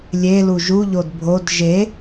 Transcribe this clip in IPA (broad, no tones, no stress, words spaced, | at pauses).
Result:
lʲe luʒuʎod bʱod ʒe